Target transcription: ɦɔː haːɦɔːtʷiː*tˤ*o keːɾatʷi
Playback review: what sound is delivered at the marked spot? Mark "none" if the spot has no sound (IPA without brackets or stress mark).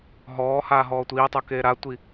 tˤ